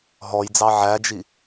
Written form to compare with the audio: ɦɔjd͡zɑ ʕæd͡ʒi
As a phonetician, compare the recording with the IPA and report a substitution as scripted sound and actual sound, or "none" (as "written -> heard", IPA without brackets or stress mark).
none